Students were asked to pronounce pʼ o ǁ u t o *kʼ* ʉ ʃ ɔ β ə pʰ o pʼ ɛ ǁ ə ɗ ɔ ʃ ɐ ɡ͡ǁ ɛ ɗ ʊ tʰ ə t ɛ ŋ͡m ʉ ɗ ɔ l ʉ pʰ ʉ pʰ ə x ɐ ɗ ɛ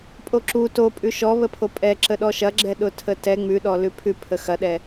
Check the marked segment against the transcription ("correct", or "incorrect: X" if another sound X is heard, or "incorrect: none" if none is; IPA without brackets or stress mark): incorrect: pʼ